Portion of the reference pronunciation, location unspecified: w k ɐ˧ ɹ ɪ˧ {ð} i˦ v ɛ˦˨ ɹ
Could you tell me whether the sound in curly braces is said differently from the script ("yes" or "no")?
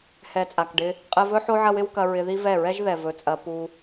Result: no